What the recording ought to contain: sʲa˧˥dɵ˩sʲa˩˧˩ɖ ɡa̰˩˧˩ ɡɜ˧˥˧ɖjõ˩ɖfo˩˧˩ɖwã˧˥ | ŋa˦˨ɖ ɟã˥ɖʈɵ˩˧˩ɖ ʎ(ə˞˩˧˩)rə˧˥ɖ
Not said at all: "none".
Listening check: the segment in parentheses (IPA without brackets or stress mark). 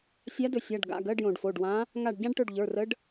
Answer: ə˞˩˧˩